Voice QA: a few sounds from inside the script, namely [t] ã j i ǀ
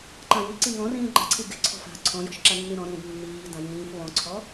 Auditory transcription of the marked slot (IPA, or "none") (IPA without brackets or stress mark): ǃ